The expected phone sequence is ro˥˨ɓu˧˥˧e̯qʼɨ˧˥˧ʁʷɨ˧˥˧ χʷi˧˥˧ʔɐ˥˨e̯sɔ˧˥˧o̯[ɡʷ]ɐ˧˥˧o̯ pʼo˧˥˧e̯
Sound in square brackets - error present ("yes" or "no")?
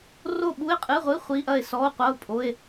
yes